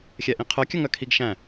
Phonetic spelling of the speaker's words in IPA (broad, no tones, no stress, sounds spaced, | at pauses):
xʲ ɛ ʔ ĩ qʰ œ kʲ œ ŋ œ kʰ i ɡ ʃ æ̃